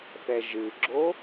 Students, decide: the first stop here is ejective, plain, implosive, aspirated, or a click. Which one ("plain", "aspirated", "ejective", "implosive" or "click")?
click